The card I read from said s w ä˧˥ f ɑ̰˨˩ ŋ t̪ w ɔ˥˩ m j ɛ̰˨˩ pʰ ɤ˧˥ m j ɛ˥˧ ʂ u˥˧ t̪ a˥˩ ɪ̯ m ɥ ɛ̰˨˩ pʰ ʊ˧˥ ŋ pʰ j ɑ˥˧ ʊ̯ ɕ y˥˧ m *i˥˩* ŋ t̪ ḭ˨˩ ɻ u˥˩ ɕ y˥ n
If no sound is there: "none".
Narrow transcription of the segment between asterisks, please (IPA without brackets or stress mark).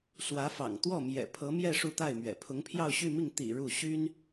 i˥˩